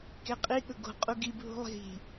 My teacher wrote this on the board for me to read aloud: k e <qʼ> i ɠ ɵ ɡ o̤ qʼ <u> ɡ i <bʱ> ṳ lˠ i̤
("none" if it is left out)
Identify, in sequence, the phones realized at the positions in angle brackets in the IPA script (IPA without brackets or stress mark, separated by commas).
qʼ, u, bʱ